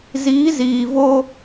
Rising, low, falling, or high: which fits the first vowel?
rising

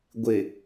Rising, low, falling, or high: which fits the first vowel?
low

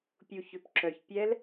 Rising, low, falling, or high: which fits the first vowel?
low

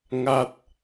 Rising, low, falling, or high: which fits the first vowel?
falling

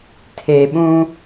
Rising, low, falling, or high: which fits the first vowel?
low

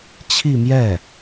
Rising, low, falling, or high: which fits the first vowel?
falling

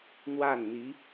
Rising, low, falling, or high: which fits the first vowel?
falling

